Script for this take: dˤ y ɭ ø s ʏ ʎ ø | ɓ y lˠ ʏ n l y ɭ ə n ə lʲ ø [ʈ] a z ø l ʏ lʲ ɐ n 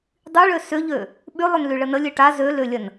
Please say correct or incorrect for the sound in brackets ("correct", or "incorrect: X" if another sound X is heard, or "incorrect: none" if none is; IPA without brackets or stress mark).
correct